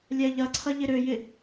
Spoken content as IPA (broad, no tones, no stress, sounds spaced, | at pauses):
lʲ ɛ ʎ ɐ ǀʰ ɐ ʎ ɪ ɾ ø j ɪ